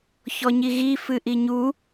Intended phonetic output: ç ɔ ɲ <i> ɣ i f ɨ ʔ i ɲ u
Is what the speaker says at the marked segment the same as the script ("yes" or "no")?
yes